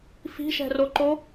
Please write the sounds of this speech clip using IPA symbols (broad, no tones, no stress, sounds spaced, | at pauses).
f i̤ ʃ ɛ̤ r o ǃ o